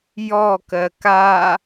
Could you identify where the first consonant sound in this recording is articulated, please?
palatal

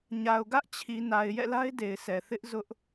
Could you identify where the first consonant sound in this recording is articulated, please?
palatal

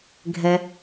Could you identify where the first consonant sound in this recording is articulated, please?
velar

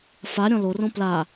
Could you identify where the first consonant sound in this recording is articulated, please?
labial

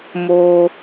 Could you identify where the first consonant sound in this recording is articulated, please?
labial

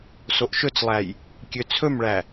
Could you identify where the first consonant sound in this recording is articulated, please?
alveolar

